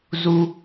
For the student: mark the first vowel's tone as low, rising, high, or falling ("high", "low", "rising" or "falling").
high